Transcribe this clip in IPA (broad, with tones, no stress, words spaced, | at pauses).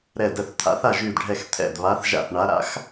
ɾɛ˧˩də˧˩θ t̪ʰa̰˨˦θa˧˩ʒy˧˩dɖʱɛ˧˩x t̪ʰɛ̰˧˩dβa˨˦θʒa̰˧˩θɳa˨˦ ɾa̰˨˦x